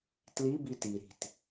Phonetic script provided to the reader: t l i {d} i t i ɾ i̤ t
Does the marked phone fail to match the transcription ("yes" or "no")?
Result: yes